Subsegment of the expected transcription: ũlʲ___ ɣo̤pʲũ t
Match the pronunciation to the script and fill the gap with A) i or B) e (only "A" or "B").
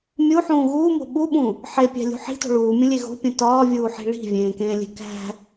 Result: B